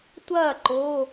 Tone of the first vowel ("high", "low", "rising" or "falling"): falling